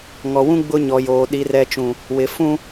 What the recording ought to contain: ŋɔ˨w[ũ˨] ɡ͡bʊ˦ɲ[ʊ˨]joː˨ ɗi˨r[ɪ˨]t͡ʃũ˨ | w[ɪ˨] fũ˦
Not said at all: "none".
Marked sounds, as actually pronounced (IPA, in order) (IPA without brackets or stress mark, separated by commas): ũ˦, ɔ˨, ɛ˨, ɪ˨